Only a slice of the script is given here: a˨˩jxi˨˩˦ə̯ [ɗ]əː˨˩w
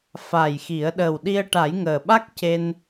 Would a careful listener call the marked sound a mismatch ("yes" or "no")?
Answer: no